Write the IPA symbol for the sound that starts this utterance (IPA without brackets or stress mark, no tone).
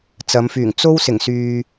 t͡s